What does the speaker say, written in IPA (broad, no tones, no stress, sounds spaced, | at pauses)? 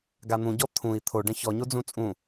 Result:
ɡ a n̪ ũ ɟ ɔ t̪ʰ ũ i̯ t̪ʰ o ɖ ɐ̃ ç ɔ ɲ o d͡z ũ t͡sʼ ũ